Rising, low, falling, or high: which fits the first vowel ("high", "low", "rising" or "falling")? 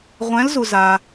rising